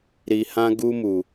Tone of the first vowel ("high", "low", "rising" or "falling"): low